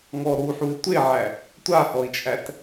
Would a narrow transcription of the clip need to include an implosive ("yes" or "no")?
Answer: no